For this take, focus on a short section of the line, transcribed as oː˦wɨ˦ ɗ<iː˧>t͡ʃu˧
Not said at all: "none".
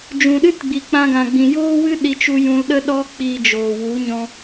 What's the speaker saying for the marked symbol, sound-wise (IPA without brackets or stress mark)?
i˧